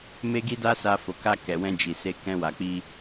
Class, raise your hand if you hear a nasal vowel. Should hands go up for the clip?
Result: yes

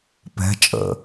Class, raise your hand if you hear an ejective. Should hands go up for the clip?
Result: yes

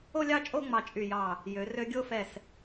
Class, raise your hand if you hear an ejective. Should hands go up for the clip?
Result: yes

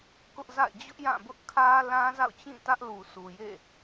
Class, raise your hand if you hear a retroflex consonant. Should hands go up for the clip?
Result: no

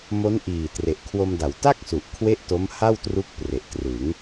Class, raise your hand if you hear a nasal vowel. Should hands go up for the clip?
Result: no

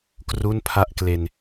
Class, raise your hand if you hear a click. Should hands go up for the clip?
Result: no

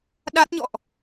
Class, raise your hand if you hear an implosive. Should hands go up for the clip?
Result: yes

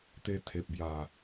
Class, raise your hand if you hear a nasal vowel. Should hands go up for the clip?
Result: no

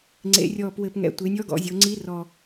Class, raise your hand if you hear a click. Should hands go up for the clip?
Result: yes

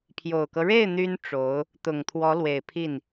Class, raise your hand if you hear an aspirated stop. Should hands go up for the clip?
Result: yes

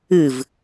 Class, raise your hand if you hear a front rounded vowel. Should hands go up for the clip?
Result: no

